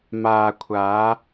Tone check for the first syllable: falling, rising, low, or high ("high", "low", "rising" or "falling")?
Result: low